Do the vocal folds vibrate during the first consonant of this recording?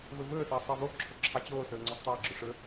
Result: yes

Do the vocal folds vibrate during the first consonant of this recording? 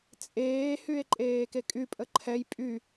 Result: no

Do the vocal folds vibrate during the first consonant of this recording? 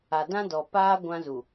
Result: yes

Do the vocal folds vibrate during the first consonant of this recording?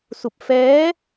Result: no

